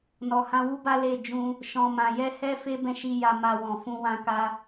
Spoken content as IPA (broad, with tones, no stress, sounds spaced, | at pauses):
n ɔ˨ h ã˧ w u˦ b a˦ l e˦˨ d͡ʒ ũ˧ | ʃ ɔ̃˨ m ã˨ j ɛ˧ h ɛ˦ f e˦ b ɛ̃˦ ʃ i˧ j a˧ m a˧ w ɔ̃˨ f ũ˧ w ã˦ k a˦